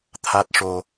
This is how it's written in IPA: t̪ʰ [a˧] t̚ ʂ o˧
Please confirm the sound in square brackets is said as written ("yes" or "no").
no